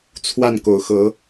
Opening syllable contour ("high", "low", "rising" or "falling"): falling